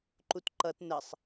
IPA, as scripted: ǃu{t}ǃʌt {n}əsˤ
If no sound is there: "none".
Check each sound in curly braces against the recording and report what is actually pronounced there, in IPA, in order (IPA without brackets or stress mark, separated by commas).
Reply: t, n